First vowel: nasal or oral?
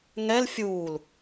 oral